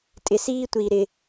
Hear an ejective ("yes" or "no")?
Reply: yes